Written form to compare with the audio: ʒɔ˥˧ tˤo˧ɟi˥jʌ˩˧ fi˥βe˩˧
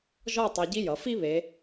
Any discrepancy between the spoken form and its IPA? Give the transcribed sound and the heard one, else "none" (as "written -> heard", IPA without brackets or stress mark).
none